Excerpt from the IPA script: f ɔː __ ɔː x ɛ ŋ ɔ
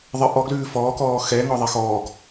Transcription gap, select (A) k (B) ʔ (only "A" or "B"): A